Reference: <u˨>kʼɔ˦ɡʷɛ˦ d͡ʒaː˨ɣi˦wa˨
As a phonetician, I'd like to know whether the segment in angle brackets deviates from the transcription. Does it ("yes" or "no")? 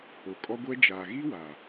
yes